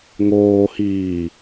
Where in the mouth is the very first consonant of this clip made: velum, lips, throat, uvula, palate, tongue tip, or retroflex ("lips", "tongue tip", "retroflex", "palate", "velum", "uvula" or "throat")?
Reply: velum